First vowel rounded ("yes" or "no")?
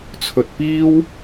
yes